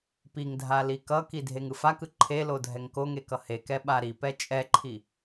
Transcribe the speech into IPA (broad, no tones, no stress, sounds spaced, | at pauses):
p i ŋ dʱ a l i k ʌ k i dʱ e ŋ ɯ f a k ɯ ǃʰ e l o dʱ ɛ ŋ k o ŋ e k ʌ h e k ɛ ɓ a ɾ i p ɛ t͡ʃʼ ɛ ǃʰ i